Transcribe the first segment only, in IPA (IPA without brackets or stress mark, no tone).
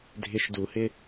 dʱ